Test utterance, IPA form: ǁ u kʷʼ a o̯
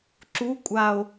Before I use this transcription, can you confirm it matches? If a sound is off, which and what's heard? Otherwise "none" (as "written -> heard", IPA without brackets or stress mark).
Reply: none